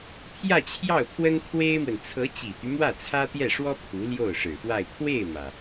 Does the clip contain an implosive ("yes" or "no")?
no